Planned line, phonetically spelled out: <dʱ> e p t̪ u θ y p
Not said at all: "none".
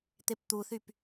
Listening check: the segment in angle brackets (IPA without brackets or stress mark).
t̪